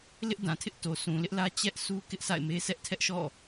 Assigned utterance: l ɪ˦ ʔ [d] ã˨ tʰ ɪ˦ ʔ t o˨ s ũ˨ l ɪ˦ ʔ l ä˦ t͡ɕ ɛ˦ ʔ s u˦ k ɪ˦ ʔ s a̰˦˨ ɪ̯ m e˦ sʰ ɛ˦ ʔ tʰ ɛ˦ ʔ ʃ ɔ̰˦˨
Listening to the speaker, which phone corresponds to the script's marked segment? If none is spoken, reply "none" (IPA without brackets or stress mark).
d